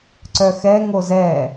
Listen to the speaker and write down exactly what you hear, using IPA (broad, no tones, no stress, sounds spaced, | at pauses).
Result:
ǀ œ x ɛ ŋ o z ɛ